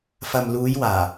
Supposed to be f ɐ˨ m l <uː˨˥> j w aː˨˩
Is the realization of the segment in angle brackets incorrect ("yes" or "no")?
yes